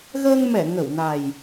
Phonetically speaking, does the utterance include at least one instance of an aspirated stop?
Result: no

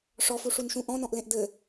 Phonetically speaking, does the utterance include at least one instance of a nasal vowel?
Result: yes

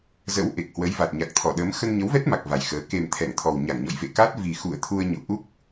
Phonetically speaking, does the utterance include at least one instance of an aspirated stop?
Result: yes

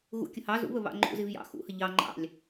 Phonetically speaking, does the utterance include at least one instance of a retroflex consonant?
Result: no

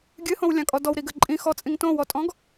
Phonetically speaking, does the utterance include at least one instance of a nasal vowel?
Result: yes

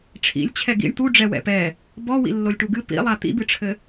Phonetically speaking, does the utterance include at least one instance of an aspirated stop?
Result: yes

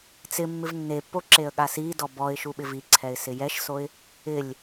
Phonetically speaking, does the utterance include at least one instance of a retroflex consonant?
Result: no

